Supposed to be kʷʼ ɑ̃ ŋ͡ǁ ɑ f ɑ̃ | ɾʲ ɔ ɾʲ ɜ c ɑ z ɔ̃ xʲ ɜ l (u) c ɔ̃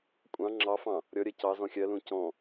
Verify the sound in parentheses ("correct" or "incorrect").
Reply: incorrect